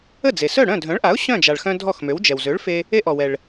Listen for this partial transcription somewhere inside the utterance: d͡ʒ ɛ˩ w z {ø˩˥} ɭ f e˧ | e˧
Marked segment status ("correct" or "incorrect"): correct